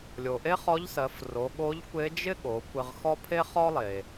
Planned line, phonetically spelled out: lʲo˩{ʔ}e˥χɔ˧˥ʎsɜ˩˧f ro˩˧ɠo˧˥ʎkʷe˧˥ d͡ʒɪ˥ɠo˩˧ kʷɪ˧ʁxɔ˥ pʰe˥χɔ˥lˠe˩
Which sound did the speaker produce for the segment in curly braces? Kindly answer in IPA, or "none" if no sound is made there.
ʔ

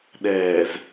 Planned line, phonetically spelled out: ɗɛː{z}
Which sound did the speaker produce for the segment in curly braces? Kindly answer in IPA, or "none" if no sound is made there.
z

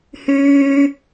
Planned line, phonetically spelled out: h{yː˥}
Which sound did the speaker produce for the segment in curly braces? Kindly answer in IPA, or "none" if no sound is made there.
yː˥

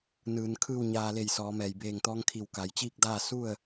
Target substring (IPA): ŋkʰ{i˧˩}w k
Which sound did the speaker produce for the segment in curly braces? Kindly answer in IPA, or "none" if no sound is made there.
i˧˩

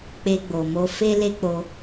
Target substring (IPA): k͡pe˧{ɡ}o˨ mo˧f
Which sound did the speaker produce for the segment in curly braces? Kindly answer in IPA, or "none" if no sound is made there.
ɡ͡b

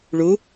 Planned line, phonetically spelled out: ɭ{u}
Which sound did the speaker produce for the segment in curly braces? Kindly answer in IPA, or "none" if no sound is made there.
u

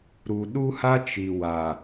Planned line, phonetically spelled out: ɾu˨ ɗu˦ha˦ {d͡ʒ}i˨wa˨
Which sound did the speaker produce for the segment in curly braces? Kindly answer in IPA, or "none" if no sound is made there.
t͡ʃ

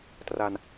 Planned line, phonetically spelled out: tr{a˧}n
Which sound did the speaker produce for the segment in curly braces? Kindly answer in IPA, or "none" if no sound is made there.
a˧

